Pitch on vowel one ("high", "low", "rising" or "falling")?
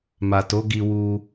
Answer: low